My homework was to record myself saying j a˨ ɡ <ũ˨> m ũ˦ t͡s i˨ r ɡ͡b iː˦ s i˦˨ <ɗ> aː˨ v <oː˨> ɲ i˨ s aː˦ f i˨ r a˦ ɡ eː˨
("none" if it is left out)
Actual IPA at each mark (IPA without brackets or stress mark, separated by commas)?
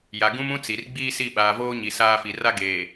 ũ˦, ɓ, oː˦